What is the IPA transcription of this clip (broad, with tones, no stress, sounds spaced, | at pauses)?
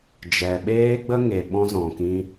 d͡ʒ ɛ˨ ɓ eː˦ ɡ͡b ə˦ ŋ e˨ ɓ ɔ̃˧ z ɔ̃˨ k ĩ˧